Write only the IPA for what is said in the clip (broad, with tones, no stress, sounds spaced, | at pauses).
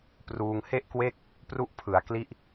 p r uː˧ ŋ h e˥˩ ʔ k w e˥˩ k̚ | p r u˦˥ ʔ pʰ ɯ˩˦ a̯ k l i˦˥ ʔ